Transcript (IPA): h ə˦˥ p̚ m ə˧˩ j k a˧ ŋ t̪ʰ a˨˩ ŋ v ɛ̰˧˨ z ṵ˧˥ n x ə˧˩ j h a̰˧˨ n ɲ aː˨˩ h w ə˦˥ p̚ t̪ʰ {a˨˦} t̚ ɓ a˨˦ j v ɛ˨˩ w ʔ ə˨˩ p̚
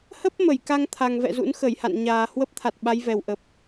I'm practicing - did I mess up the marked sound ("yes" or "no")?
yes